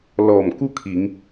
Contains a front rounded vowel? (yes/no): no